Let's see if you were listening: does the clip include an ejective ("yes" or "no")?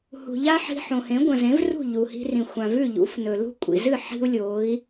yes